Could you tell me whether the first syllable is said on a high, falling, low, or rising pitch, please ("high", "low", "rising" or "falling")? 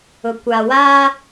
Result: low